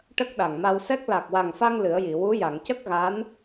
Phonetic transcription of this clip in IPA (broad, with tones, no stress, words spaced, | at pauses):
ʈə˦˥k̚ɗa˨˩ŋma˧wsɛ˦˥k̚ la˨˩k̚wa˨˩ŋfa˧ŋ lɨ˨˩˦ə̯ji˨˩˨ wu˧˥ja˨˩˨ŋ cə˦˥k̚ɣa˧˥n